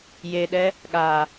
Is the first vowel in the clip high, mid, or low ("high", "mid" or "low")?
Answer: mid